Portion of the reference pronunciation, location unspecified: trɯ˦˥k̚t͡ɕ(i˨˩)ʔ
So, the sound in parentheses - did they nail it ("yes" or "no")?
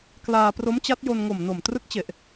no